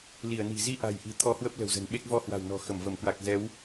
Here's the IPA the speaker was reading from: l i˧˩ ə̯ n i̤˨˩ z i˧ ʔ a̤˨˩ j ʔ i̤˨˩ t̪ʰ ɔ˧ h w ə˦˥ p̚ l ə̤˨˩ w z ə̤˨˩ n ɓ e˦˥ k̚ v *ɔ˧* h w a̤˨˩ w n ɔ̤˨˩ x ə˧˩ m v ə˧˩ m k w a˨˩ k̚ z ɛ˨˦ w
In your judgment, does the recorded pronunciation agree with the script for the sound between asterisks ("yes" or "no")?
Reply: yes